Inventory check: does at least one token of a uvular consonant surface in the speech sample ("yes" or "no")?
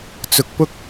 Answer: no